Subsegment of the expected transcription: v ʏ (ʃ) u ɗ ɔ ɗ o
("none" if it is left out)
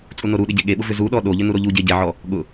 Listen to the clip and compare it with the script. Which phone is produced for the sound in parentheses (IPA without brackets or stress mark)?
z